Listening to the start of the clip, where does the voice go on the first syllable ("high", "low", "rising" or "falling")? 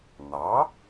rising